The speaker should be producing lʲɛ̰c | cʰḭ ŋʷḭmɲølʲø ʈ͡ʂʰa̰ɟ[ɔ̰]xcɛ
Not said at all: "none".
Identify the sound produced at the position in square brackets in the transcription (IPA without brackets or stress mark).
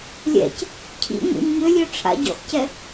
ɔ̰